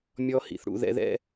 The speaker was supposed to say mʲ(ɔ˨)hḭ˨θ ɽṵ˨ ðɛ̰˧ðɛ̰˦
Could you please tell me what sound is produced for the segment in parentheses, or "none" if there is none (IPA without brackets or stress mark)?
ɔ˧